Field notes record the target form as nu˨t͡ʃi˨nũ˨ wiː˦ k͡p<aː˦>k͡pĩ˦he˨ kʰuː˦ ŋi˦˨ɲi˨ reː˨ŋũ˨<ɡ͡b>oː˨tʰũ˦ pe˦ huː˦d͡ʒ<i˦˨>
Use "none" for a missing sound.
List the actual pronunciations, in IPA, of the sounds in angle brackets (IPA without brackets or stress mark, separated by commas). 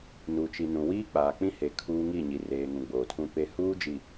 aː˨, ɡ͡b, i˨